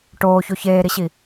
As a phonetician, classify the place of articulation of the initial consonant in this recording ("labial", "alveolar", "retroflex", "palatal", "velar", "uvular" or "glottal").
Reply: retroflex